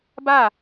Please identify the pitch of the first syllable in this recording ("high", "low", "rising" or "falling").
falling